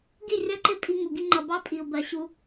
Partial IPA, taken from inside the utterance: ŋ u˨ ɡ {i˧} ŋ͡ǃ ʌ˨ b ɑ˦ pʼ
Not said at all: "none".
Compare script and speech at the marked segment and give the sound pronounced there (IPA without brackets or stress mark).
i˧